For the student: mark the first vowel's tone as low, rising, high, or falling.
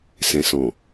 low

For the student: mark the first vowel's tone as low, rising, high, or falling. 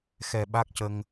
low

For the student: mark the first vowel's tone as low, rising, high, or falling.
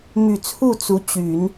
low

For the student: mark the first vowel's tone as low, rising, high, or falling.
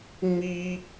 high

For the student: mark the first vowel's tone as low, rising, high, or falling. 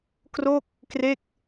falling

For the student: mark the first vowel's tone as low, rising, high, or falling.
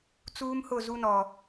high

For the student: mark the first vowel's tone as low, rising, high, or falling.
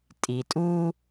low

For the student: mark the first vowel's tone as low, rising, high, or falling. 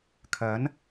rising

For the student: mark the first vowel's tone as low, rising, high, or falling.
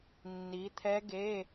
rising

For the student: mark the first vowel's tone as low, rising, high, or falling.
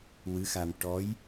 rising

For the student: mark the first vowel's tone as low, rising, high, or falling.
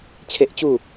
high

